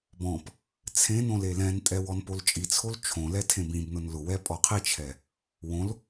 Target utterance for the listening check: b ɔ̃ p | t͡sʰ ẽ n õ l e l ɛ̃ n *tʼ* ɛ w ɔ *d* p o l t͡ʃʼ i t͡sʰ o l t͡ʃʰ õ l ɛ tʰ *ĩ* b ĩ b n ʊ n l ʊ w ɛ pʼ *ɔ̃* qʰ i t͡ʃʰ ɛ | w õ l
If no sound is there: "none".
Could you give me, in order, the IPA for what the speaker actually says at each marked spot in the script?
tʼ, n, ẽ, ɔ

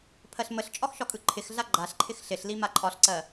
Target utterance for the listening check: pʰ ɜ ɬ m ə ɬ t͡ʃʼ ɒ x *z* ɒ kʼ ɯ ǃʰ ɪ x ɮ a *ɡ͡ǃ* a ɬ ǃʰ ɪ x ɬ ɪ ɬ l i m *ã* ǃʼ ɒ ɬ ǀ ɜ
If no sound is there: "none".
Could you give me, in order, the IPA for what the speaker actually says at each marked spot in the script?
ʃ, ɡ͡ǃ, a

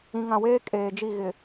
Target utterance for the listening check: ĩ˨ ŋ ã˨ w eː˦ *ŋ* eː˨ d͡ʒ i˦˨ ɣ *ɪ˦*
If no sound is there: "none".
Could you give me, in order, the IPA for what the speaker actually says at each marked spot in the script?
kʼ, ɪ˨

